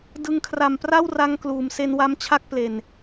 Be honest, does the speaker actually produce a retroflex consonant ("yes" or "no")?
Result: no